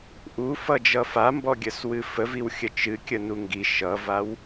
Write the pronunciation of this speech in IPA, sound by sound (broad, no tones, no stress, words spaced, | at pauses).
ʔufʌd͡ʒʌ fambɔɡʲəswɨ fəviwxʲə t͡ʃɨkʲənu ŋɡi ʃʌvaw